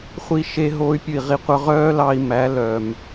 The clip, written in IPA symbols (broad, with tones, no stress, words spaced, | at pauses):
χʷi˦˨ ʃe˧ ɦoː˧y̯pʲʉ˨i̯ʁi˨qʷœ˧ ʁœː˦lɑ˧i̯ mæ˨˦ lœː˨m